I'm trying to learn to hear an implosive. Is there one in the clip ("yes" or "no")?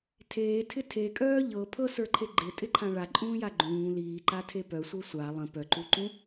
no